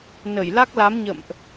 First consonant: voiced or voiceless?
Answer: voiced